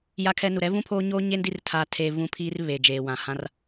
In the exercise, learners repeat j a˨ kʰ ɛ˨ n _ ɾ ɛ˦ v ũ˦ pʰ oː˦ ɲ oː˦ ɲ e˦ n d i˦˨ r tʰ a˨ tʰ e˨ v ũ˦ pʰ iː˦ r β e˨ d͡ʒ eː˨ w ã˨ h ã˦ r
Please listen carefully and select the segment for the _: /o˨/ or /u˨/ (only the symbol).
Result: u˨